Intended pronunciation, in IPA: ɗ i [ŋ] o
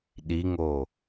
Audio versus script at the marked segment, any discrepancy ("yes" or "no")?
no